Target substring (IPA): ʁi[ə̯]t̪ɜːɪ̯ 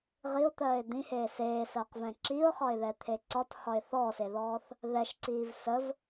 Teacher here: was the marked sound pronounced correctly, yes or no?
no